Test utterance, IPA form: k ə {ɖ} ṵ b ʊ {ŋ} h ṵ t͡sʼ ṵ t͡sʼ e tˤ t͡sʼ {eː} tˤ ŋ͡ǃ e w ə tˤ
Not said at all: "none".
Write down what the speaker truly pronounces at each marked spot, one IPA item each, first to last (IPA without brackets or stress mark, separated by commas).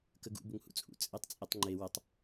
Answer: ɡ, ŋ, e